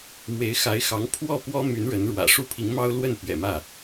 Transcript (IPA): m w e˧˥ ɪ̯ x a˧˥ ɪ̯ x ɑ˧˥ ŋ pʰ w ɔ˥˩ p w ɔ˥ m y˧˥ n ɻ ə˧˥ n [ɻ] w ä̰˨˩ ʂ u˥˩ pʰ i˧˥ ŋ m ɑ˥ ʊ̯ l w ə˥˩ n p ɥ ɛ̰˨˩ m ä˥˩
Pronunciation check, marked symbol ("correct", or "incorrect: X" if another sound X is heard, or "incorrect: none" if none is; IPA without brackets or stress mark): correct